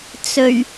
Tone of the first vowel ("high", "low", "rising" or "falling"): low